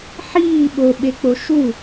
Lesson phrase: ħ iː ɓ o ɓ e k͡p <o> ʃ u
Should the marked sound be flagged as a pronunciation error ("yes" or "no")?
no